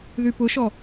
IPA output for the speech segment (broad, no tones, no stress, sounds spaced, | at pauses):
ð y p ʊ ʃ ɔ